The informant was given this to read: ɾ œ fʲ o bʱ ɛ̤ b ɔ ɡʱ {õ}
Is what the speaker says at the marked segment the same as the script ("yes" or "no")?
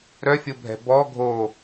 no